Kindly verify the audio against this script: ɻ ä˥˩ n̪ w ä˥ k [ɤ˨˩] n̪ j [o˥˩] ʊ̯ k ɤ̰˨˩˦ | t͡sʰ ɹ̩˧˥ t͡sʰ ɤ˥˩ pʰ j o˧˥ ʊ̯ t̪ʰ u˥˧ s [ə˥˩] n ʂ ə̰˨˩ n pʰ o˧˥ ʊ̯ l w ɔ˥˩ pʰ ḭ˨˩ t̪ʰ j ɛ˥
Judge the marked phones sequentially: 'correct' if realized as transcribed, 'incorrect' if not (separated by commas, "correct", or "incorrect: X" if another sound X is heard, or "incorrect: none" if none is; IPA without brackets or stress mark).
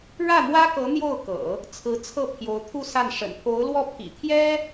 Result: incorrect: ɤ˧˥, correct, incorrect: a˥˩